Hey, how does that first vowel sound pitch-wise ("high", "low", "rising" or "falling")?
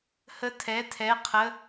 high